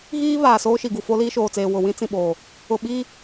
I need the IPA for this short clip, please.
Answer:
ɣiː˦ βaː˨soː˦ʃi˨ɡu˨ fo˦liː˦ʃoː˨t͡seː˨ wʊ˨wĩ˦ t͡sĩ˨ɓoː˨ | ʊ˨ɓiː˦

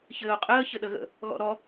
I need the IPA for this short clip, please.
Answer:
çɘːo̯qʼəː çɘɗəɣə̰ | ɣɔ̰ɾɔ

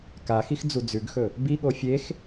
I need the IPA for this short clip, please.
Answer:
kaxix d͡zud͡zʉɡxɵ | biɠo fʲex

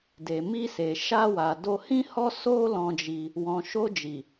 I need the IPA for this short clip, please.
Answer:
de˨mi˧se˨ ʃa˧wa˨ do˧hĩ˦hɔ˦ so˦lɔ̃˧ d͡ʒi˧ | wɔ̃˨ʃo˧d͡ʒi˨

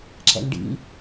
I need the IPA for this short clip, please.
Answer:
ǁɛ̰ŋɖḭ

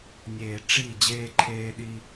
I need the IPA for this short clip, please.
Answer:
nʲeː˨ʈ͡ʂi˦˨ d͡ʑeː˦ǃʰeː˦ ɗi˦

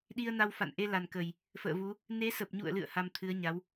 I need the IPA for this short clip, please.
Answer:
ɗi˧ə̯na˧wfa̰˧˨n ʔe˧la˨˩nkə˨˩j | fə̰ː˧˨vu˨˦ | ne˨˦sə˨˩p̚ɲṵ˧˨ə̯lɨ̰˧˨ə̯ ha˧mt̪ʰɨ˨˦ə̯ɲa˨˦w

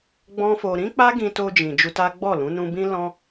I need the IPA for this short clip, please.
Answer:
ɡ͡bɔ̃˦fo˧ ɾĩ˦k͡pa˦ ɡĩ˧to˧d͡ʒĩ˨ d͡ʒu˧ta˦ ɡ͡bɔ˦˨lũ˨˦ nũ˧bĩ˦lɔ̃˦

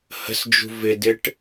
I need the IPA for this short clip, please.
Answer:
hə̤sd͡ʒṳ vɪdɪʈ

